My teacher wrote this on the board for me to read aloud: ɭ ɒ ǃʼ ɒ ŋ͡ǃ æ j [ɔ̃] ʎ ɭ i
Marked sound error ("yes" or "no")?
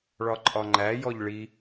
yes